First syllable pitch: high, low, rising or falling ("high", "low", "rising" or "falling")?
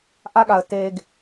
low